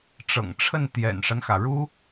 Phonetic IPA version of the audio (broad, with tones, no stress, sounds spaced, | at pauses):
ʈ͡ʂ ɤ̰˨˩ ŋ ʈ͡ʂʰ ə˥˩ n t̪ j ɛ̰˨˩ n ʂ a˦ n x ä˩ ɻ u˥